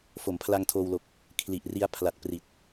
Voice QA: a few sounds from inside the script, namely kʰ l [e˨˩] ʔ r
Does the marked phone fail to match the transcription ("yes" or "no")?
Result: yes